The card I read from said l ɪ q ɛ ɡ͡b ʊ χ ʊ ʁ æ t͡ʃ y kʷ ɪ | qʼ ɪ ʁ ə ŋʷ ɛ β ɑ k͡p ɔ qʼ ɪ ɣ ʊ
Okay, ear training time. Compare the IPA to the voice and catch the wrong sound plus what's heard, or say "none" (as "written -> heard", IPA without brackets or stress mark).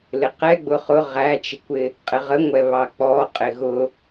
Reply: y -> ɪ